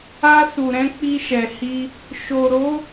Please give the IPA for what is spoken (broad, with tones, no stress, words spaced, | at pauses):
a˧ su˨ɾɛ̃˧ k͡pi˧ʃɛ˨hi˧ | ʃo˨ɾo˨˦